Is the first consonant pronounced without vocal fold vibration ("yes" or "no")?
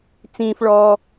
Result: yes